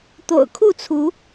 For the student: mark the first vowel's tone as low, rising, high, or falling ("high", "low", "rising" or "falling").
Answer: low